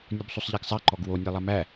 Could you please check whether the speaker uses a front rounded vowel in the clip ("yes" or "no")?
no